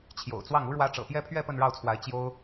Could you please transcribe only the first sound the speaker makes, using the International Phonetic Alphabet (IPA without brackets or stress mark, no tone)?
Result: t͡ɕʰ